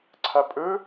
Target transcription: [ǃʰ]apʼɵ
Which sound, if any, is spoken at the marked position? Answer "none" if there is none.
ǀʰ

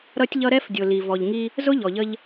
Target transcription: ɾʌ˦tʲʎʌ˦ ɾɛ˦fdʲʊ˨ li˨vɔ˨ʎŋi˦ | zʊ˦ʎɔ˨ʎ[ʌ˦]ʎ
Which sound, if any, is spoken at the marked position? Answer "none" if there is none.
ə˦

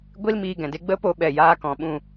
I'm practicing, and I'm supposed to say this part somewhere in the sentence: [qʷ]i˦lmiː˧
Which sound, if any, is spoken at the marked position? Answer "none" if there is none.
ɡʷ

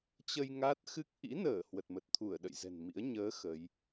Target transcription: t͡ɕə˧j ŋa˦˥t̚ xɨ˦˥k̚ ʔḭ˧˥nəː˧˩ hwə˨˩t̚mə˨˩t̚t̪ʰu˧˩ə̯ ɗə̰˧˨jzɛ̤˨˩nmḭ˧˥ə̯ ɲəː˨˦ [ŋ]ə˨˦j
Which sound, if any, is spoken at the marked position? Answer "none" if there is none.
x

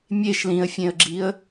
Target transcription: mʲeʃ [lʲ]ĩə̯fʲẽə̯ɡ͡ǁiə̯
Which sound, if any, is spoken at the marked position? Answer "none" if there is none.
l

